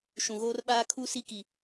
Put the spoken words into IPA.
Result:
ʃ ũ˨ ɣ oː˦ r ɓ aː˦ kʰ u˦ s i˦ k i˨

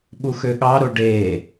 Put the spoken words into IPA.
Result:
ɓ u x ø ɠ ɑ ɾ o ɖ e

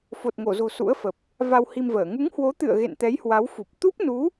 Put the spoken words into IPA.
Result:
f o˨˩ t̚ ŋ o˧˩ z o̤˨˩ s ṵ˧˥ ə̯ f ə˨˩ p̚ | v a˧ w h i˧ m v əː˧˩ ŋ u˨˦ ŋ h w o˨˦ t̪ ɨ̰˧˨ ə̯ ɣ ḛ˧˨ n t̪ ɛ˨˦ j h w a˨˦ w f u˨˩ p̚ t̪ u˦˥ p̚ n u˨˦

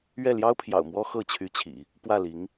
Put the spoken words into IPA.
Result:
ɥ ɛ˥˩ l j ɑ˥ ʊ̯ pʰ j ɑ̰˨˩ ʊ̯ m w ɔ˥ x ɤ˥˩ t͡ɕʰ y˧˥ t͡ɕʰ ḭ˨˩˦ | p w ä˥˩ l i˧˥ ŋ

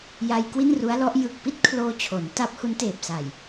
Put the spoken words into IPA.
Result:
j a˧ j k w i˥˩ n r u˦˥ a̯ l ɔ˦˥ ʔ j ɯ˨˩ k̚ p i˥˩ t̚ kʰ l oː˧ t͡ɕʰ o˩˦ n t a˦˥ p̚ h u˦˥ n t eː˨˩ p̚ s a˨˩ j

